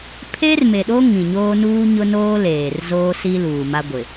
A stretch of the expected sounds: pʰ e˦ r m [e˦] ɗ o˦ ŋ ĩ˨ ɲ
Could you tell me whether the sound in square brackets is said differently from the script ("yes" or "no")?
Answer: yes